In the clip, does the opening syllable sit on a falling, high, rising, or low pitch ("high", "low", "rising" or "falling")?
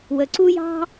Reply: low